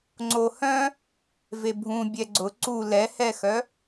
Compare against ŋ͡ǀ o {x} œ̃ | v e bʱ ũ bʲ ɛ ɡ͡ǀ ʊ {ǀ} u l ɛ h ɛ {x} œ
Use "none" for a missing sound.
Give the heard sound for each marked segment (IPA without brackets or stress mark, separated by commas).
h, ǀ, x